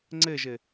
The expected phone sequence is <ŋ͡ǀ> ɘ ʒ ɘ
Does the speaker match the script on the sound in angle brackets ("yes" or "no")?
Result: yes